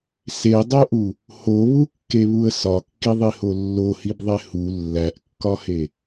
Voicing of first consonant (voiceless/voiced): voiceless